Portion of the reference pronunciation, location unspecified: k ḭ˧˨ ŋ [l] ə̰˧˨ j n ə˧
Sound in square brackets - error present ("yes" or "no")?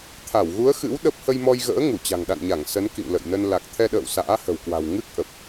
no